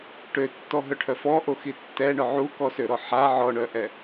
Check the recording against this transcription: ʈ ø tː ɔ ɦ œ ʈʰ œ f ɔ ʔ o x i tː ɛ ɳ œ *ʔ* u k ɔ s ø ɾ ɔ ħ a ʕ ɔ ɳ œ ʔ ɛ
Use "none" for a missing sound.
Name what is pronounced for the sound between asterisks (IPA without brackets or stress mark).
ʕ